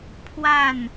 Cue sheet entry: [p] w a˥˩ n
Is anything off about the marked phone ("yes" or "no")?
yes